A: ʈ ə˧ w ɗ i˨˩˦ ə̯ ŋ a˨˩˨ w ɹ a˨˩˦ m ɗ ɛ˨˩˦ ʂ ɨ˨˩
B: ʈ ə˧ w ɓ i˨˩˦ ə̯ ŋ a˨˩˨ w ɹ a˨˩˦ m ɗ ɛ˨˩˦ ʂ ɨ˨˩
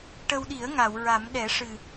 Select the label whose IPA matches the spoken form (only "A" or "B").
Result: A